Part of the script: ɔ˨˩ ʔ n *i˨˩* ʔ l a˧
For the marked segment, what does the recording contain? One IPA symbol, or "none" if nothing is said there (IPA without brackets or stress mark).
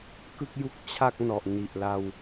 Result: i˨˩